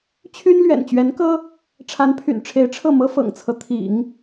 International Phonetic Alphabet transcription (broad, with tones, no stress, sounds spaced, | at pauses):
t͡ɕʰ y˥ n l ɥ ɛ̰˨˩ n t͡ɕ ɥ ɛ˧˥ n k ɤ˥ | ʈ͡ʂʰ a˧˥ n pʰ y̰˨˩ n ʈ͡ʂʰ e˧˥ ɪ̯ ʈ͡ʂʰ ɤ˥˩ m ɤ˥ f ɤ̰˨˩ ŋ t͡sʰ ɤ˦ t̪ʰ ḭ˨˩˦ ŋ